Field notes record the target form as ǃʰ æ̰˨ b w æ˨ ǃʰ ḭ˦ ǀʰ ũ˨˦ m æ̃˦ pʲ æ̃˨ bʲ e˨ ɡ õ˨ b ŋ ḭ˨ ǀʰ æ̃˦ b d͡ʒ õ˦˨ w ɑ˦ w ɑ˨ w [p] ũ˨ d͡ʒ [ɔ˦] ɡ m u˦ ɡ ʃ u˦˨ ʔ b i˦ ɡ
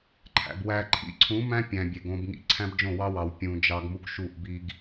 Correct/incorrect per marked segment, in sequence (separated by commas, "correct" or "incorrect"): incorrect, incorrect